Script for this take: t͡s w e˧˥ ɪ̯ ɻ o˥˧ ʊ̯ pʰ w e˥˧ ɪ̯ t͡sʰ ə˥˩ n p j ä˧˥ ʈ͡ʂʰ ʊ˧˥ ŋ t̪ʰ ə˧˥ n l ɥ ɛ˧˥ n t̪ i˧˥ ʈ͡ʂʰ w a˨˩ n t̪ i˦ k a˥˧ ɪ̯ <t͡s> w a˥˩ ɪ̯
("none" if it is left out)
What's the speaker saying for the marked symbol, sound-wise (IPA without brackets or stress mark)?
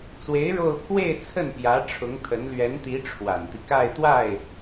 t̪